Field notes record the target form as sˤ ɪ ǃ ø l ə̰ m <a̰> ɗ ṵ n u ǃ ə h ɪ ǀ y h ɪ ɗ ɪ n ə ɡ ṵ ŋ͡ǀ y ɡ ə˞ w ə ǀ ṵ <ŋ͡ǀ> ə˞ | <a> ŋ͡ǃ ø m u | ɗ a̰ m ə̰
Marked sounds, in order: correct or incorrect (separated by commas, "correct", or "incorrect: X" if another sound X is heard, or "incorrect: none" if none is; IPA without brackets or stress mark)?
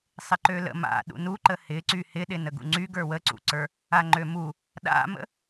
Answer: correct, incorrect: ǀ, correct